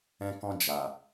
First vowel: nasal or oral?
nasal